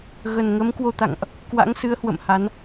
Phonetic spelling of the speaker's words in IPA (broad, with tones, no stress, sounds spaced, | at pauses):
ɣ ə˨˩ n ŋ ə˨˦ m k w o˧ t̪ a̰˧˨ ŋ ʔ | k w a̰˧˥ ŋ s ɨ˨˦ ə̯ h w ə̰˧˨ m h a˨˦ n